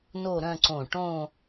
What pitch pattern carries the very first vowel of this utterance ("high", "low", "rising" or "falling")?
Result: falling